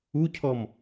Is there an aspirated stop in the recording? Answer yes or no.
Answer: yes